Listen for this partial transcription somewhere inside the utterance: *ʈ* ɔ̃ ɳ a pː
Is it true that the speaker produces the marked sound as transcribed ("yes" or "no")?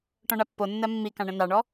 yes